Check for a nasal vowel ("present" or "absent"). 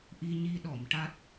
absent